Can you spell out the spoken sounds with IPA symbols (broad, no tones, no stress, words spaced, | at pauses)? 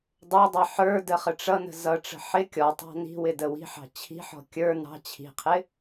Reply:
dˤə˞dˤɑ ħə˞də χəʈ͡ʂʌnə̤ zʌʈ͡ʂə̤ ħɪ kʲɔtˤɑ̤ ni̤wɪ dəwi̤ħɑ̤ t͡ɕʰi̤ħɔ̤ kʲə˞ nɑ̤ t͡ɕʰi̤qʰɪ